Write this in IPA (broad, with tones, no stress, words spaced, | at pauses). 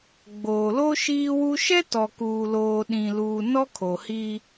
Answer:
ɡ͡boː˨lo˦ ʃiː˦wu˦ ʃɛ˦tɔ˨kuː˨loː˨ ɗĩ˨luː˨ nɔ˦kʰo˨hi˦